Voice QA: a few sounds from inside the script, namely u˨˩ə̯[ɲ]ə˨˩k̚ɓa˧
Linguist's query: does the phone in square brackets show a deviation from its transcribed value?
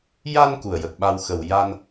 yes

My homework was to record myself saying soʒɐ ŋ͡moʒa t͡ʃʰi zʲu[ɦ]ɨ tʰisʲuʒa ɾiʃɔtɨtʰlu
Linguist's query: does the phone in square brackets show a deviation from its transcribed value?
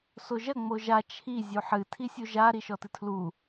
yes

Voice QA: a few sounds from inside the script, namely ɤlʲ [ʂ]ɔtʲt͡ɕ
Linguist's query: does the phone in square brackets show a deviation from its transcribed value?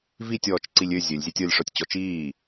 no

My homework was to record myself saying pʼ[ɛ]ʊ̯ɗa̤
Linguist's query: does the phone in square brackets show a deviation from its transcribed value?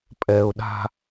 no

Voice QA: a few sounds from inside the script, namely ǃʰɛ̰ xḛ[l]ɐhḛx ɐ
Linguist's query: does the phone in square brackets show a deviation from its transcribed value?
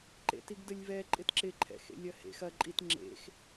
yes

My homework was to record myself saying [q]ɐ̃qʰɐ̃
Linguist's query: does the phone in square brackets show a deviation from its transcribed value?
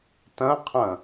yes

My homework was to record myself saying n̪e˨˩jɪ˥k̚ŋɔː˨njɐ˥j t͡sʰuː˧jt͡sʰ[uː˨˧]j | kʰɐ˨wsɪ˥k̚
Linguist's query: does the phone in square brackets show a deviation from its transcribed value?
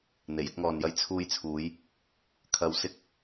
no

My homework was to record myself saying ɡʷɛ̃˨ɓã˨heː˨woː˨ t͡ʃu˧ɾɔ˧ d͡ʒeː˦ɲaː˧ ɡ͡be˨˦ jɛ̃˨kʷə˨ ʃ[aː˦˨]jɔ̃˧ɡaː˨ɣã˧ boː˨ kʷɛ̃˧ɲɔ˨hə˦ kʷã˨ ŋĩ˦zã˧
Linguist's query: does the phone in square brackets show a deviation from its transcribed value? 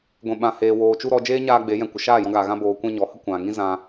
no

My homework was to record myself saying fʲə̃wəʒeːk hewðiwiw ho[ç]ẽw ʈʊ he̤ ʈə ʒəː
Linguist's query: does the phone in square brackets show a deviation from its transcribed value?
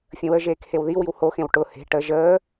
yes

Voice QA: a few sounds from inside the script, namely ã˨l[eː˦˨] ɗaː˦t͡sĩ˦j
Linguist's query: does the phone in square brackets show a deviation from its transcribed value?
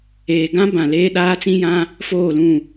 yes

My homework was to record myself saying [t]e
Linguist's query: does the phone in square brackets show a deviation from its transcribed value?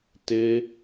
no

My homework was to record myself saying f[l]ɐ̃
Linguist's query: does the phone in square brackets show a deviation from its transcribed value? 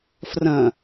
yes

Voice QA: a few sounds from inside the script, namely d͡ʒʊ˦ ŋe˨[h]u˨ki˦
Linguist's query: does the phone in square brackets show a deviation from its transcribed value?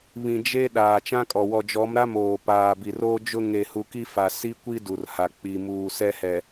no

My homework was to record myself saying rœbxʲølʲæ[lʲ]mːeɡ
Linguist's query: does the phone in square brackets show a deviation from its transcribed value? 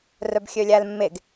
yes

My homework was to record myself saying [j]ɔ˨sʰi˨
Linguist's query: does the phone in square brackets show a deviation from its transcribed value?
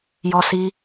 no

